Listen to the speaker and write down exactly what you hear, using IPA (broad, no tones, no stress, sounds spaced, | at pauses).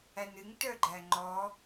æ n ɨ ŋ t œ ɡ͡ǃ æ ŋ͡ǃ ɔ